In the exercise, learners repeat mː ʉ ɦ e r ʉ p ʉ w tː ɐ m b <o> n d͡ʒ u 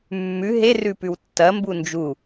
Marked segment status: incorrect: u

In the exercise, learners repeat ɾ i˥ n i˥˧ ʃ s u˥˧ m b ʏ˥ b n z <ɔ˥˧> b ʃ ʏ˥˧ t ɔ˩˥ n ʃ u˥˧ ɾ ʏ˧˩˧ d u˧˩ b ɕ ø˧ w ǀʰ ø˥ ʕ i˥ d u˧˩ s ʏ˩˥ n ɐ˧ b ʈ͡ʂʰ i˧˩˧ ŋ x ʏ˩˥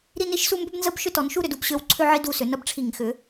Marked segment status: incorrect: ə˥˧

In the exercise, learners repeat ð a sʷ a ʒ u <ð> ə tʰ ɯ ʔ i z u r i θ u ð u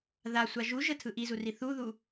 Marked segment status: incorrect: ʒ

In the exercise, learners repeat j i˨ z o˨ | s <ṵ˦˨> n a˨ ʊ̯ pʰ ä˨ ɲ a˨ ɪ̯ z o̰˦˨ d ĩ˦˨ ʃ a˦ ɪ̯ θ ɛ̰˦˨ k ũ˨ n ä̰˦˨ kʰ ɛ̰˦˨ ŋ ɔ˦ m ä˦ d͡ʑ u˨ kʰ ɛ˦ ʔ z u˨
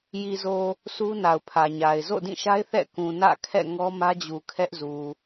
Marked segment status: incorrect: u˦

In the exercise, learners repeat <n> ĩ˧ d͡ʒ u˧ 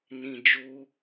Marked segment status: correct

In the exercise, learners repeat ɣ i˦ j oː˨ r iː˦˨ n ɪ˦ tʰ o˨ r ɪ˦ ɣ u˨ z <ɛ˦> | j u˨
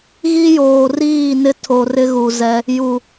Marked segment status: correct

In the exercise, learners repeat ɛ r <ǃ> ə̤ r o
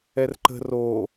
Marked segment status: correct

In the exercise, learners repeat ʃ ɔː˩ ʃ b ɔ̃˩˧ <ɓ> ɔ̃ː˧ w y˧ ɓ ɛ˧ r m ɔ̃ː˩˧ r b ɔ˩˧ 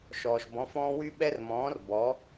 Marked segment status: incorrect: f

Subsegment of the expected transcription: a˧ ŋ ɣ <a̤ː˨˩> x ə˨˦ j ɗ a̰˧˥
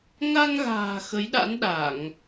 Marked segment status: correct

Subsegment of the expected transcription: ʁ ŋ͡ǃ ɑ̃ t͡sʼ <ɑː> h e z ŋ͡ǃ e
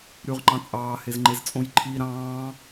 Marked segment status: correct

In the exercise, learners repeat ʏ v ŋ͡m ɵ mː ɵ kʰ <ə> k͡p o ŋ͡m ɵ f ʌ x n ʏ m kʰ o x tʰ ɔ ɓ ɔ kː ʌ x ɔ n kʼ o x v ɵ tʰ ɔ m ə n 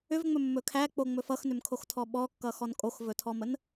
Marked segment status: incorrect: æ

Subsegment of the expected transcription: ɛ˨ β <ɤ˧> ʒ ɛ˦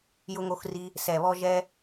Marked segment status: incorrect: ɔ˧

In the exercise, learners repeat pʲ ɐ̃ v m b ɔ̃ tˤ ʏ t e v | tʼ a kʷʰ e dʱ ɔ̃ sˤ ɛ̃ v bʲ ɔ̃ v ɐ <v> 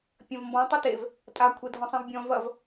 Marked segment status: correct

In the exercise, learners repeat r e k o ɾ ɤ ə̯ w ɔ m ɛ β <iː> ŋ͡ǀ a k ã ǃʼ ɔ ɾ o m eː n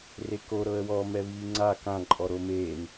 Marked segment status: correct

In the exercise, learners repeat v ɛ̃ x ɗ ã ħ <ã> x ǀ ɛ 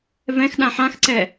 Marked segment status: correct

